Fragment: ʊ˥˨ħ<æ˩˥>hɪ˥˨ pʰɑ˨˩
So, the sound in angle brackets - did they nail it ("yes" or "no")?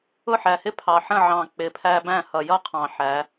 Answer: no